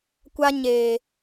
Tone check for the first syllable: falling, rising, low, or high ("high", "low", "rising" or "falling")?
high